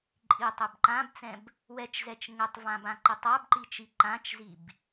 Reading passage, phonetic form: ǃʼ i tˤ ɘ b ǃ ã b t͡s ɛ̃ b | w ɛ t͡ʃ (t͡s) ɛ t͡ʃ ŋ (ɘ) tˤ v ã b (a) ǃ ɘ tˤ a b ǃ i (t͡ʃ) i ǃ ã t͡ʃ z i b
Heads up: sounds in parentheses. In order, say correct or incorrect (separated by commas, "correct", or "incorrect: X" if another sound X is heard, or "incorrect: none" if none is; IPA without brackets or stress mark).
incorrect: z, correct, incorrect: ã, correct